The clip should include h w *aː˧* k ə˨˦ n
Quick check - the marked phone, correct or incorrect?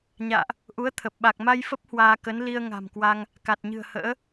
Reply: correct